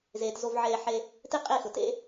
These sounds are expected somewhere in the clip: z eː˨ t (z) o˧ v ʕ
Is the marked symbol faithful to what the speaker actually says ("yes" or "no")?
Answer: yes